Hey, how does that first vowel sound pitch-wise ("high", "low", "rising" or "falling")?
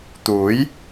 rising